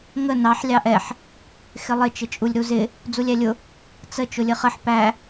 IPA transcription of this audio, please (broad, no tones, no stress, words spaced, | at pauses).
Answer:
ŋə nɑħ lʲɑʔɛħ | xɪlˠɪ t͡ʃɪt͡ʃʼulʲɾuzɪ | d͡zulʲælʲʊ | t͡sə t͡ʃʊlʲəχəħ pæ